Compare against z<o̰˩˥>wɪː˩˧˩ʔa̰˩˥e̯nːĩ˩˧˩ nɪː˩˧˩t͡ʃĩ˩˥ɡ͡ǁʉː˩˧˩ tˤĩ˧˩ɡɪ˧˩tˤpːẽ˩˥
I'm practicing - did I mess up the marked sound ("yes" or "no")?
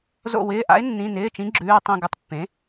yes